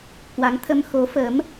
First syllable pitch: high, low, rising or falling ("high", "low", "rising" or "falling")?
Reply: rising